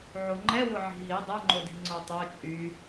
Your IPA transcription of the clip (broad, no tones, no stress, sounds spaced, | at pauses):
ʕ o ŋ͡ǃ ɛ w ʊ ʕ i̤ ɦ i dˤ ɛ ŋ͡ǃ o d i̤ ŋ͡ǀ o tˤ o t͡ʃʼ y